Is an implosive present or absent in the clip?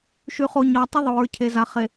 absent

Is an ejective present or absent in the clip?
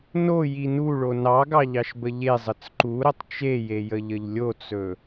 absent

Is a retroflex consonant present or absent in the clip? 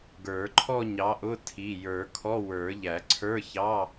absent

